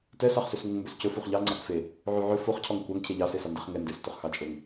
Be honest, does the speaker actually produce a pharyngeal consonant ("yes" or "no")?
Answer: yes